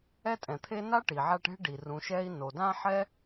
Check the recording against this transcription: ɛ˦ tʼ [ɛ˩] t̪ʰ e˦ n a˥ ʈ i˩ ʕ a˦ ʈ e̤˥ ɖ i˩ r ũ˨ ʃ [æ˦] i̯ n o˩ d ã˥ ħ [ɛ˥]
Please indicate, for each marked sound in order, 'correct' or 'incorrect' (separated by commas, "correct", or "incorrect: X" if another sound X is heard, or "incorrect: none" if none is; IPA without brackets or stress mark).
incorrect: ɛ̃˩, incorrect: ɛ˦, correct